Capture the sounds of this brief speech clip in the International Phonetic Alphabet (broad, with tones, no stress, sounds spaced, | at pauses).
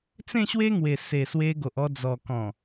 t͡s ẽ˥˧ ɕ w e˦ ŋ w e˨˩ s e˨˩ s w e˧ ɡ o˨ ʔ ɔ˧ d͡z ɔ˨˩ k ɔ̃˨˩